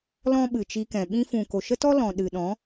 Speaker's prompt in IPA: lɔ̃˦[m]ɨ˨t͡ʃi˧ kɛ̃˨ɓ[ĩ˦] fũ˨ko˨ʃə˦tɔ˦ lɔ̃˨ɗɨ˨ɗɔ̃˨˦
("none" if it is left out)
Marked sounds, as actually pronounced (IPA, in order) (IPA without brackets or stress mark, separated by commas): ɓ, ĩ˦